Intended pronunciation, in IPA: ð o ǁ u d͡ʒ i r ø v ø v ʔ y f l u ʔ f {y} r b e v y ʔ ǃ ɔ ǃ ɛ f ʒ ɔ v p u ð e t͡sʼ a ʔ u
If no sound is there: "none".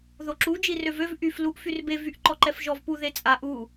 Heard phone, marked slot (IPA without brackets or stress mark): y